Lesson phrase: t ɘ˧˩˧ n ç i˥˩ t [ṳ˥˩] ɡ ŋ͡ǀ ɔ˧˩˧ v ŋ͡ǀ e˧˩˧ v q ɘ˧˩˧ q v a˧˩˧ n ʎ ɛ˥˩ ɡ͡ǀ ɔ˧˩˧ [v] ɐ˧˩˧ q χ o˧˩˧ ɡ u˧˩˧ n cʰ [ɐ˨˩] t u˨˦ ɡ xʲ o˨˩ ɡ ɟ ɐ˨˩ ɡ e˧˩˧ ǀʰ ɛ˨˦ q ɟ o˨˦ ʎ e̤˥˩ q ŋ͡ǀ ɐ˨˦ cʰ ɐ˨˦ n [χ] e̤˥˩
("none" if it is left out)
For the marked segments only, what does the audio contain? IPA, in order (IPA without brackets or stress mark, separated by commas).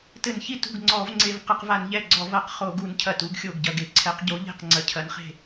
ṳ˥˩, v, ɐ˨˩, χ